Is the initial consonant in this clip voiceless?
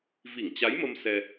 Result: no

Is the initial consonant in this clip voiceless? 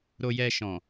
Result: no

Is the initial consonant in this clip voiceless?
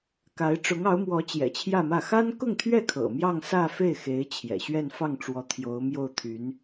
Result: yes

